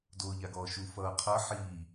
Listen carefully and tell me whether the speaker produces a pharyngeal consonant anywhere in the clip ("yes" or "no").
yes